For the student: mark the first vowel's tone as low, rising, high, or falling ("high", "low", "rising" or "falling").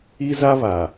high